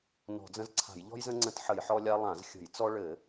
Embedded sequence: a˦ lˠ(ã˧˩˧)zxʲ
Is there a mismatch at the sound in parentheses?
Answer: no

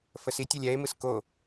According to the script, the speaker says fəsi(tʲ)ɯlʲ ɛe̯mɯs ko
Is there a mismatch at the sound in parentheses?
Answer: no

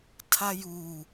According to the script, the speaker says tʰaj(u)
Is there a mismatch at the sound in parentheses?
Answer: no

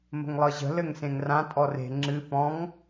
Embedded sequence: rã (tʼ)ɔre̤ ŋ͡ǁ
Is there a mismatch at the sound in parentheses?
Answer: no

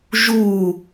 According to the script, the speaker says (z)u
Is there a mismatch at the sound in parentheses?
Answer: yes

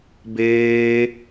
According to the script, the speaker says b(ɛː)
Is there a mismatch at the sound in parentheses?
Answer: yes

